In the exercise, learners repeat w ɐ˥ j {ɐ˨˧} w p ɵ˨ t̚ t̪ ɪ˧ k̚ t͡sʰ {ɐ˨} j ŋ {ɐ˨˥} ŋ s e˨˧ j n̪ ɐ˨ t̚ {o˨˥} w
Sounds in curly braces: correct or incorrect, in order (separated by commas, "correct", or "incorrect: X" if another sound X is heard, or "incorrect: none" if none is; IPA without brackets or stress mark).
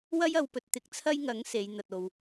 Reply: correct, incorrect: ɐ˥, correct, incorrect: o˨